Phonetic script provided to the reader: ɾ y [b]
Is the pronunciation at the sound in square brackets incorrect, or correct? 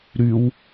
incorrect